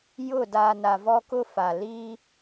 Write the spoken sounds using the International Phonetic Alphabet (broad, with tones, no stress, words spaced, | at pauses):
jʊ˦˨ daː˨na˨ vɔ˦kʊ˦fa˨ li˦